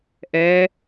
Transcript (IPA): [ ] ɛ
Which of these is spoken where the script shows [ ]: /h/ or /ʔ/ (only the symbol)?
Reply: ʔ